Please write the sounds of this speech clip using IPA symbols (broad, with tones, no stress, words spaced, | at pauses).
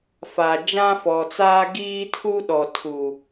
fa˨d͡ʒã˦fɔ˨t͡saː˦ ɡiː˦ tʰu˦ɗɔ˨ tʰu˨